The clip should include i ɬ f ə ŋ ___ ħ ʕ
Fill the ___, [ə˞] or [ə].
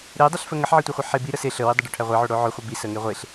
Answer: ə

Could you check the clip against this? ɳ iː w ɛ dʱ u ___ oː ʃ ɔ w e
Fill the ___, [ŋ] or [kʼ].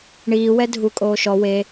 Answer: kʼ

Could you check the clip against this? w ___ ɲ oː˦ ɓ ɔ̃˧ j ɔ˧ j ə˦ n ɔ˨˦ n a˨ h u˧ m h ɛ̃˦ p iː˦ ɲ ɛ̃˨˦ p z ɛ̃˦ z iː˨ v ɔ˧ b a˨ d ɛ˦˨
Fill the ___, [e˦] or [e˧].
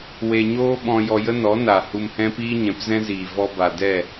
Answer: e˧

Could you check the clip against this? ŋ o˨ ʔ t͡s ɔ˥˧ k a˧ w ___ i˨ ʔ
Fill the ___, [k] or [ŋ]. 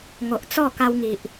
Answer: ŋ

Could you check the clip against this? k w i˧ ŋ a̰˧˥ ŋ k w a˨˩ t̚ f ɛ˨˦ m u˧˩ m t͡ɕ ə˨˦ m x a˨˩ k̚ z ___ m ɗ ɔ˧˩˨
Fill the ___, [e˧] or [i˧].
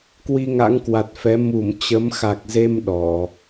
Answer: e˧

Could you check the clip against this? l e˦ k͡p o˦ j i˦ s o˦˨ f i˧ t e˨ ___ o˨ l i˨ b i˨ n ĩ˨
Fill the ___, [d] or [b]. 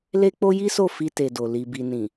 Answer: d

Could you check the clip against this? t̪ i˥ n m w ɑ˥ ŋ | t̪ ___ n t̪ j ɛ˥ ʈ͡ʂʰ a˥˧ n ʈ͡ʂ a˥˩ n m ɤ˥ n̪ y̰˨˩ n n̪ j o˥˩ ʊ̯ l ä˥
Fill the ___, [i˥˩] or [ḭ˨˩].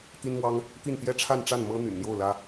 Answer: i˥˩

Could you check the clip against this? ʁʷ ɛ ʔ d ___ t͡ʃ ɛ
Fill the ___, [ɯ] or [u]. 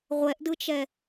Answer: ɯ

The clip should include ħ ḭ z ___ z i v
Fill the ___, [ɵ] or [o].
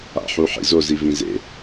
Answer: o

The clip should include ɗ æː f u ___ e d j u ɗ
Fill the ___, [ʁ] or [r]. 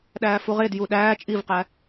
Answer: ʁ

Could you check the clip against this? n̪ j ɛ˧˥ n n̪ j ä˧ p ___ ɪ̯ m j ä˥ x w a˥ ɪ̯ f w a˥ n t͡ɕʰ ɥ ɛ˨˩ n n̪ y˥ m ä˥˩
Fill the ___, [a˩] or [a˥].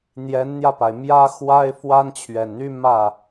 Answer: a˩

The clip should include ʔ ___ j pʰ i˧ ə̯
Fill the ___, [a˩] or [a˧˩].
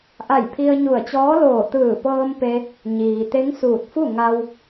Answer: a˧˩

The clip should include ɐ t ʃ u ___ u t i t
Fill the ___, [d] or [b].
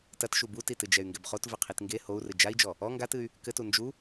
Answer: b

